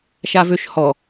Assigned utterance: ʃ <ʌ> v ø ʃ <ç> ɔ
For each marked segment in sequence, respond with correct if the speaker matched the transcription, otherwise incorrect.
incorrect: a, incorrect: h

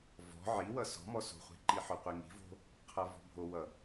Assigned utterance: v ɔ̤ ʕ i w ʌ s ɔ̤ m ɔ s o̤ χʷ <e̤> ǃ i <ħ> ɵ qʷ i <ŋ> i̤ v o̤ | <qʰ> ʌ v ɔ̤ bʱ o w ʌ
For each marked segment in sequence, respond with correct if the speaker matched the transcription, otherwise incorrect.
correct, correct, correct, correct

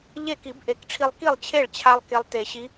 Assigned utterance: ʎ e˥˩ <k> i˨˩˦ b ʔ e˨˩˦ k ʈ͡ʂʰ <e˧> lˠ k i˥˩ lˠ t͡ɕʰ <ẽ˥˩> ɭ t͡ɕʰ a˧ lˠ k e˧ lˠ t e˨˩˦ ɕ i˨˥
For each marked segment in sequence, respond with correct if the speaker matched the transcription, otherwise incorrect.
correct, incorrect: i˧, incorrect: e˥˩

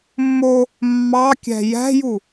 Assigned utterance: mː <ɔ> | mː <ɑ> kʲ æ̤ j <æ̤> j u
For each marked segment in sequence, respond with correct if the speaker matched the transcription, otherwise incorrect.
incorrect: o, correct, correct

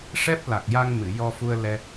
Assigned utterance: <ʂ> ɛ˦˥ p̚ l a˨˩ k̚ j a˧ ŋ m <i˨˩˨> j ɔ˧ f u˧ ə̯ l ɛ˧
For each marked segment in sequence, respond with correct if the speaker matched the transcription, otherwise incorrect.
correct, incorrect: ɨ˨˩˨

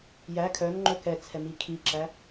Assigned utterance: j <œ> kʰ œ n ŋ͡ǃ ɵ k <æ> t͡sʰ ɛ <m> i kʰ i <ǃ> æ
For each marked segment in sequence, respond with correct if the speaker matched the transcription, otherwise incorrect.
incorrect: æ, incorrect: ɛ, correct, incorrect: ǁ

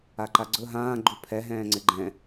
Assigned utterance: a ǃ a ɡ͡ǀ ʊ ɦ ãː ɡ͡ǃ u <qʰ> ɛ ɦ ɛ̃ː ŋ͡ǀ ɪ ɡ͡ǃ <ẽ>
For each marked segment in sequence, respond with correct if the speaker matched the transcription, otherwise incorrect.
incorrect: pʰ, incorrect: ɛ̃

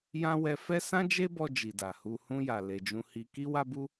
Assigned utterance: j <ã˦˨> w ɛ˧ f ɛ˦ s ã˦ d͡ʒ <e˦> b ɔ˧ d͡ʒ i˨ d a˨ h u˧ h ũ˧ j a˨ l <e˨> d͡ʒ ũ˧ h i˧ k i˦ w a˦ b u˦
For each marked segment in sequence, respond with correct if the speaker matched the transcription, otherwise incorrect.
incorrect: ã˦, correct, correct

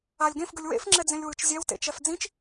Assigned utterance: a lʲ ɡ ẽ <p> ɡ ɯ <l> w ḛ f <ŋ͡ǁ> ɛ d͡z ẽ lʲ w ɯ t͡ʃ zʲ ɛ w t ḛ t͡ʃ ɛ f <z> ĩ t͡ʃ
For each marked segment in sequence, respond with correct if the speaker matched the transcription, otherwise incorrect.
incorrect: f, incorrect: lʲ, correct, incorrect: d͡z

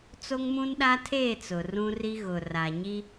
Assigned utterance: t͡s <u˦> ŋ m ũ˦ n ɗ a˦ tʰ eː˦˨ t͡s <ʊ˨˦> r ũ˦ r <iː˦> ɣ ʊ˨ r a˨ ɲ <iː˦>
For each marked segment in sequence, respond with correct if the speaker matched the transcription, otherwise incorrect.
incorrect: o˦, incorrect: ʊ˨, incorrect: i˦, incorrect: i˦

